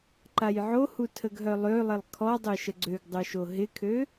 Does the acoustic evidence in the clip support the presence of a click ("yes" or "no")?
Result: yes